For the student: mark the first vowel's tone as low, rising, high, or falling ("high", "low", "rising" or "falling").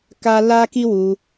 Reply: high